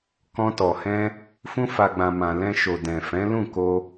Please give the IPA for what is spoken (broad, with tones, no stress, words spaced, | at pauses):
kɔ̃˧tɔ˨hɛ̃˧ | fũ˧fa˨ɡ͡bã˨ mã˨lɛ̃˧ʃo˨ dɛ̃˨fɛ̃˨˦lũ˦˨ko˧